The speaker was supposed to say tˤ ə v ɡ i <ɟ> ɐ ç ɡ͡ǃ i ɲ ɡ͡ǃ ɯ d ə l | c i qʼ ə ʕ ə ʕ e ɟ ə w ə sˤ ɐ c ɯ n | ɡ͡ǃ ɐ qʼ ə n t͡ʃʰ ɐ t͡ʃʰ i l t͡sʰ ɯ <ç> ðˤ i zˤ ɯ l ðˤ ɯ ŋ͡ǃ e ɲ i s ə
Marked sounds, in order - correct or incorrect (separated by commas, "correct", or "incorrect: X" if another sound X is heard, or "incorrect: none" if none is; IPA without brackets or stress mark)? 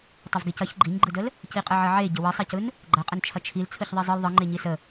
incorrect: c, correct